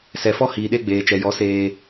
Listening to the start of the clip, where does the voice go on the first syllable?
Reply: low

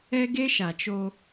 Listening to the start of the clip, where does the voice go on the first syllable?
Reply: high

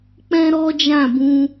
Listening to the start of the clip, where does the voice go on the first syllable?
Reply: high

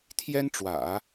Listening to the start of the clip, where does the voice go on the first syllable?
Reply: high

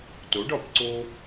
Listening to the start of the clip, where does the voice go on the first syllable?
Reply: rising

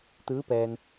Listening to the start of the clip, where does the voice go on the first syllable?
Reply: rising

